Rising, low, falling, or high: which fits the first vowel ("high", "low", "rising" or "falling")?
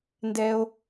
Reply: high